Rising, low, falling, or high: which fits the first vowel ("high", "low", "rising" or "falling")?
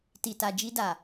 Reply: low